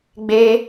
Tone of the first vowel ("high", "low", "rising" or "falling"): high